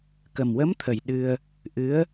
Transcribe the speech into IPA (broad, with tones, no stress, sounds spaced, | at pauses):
k ə˨˩ m w ə˧˥ m t̪ʰ ə˨˩ j ɗ ɨ˧ ə̯ | ʔ ɨ˧˥ ə̯